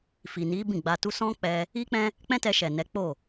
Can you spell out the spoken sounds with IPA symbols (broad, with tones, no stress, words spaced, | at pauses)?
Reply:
fi˨ni˨˦ bĩ˦˨ɡ͡ba˧ tu˧sɔ̃˦ k͡pɛ˧ | i˦k͡pɛ̃˦ | k͡pɛ̃˦tɛ˧ʃɛ˨ nɛ˨˦k͡po˦˨